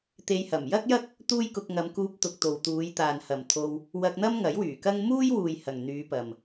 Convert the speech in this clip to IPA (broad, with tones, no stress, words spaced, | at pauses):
t̪e˧jhɐ˨˩m jɐ˥k̚jɐ˥k̚ | t̪uː˥jkʊ˧k̚ŋɐ˨˧m kuː˧p̚t̪ʊ˨k̚ t̪o˨wt̪uː˨˧jt̪aː˨nhɐ˨m t̪ʰo˧w | wɐ˧k̚n̪ɐ˥m ŋɐ˨˥jwyː˨˩kɐ˥ŋ muː˥jwuː˨j hɐ˨ŋn̪yː˨˧pɐ˨m